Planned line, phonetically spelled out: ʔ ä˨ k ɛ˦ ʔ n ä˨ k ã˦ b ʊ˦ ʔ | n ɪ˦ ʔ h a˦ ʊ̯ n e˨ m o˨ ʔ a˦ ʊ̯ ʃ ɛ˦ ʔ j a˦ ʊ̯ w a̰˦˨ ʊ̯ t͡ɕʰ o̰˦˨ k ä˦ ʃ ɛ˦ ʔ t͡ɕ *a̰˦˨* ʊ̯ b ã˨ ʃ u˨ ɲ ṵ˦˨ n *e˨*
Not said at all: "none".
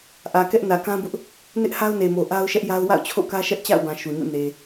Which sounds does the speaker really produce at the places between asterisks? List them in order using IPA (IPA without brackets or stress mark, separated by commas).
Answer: a̰˦˨, e˨